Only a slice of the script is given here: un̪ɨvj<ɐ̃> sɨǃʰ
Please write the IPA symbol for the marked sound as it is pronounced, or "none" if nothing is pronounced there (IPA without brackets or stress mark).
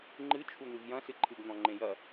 ɐ̃